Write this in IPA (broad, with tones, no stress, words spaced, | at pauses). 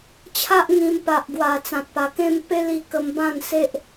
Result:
t͡ɕʰa˦ʔŋĩ˧m pa˨ʔɡwa˨˩ t͡sã˨t̚pa˨˩kẽ˦m pe˦li˧ kə˧mbã˥˧nse˦ʔ